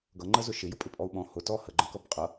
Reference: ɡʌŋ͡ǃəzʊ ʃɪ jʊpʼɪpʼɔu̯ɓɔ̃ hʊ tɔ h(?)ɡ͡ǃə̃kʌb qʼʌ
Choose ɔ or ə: ə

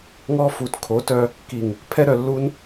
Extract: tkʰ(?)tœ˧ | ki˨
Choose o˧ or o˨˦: o˨˦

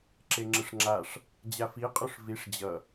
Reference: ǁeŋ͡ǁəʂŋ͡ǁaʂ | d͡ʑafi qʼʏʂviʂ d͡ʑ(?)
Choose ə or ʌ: ʌ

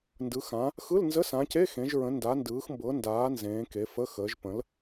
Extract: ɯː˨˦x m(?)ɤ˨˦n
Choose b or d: b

